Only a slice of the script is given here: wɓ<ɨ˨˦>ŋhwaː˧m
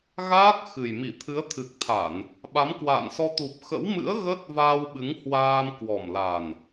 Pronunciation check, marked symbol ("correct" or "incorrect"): correct